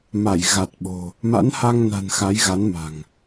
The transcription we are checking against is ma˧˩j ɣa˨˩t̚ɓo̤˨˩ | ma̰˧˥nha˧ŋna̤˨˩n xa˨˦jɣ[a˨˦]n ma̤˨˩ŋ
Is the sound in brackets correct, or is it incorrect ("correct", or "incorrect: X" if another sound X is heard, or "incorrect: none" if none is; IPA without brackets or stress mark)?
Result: correct